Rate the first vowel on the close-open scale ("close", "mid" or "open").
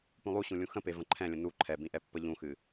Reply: close